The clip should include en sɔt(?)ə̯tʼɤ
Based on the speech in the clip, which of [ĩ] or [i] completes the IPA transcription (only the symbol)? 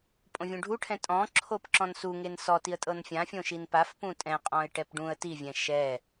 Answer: i